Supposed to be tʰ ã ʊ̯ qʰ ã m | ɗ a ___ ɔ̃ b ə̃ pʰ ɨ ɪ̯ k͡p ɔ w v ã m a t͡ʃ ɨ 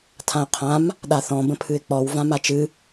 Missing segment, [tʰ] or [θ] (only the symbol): θ